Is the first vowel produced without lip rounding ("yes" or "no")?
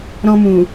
no